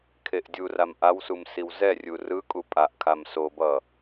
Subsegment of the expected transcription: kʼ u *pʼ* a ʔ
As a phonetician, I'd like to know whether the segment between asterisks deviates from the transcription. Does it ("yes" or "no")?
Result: no